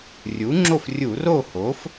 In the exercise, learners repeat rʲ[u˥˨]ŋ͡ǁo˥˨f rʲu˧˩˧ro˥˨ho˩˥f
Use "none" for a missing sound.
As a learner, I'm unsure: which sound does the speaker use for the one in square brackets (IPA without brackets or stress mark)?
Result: u˩˥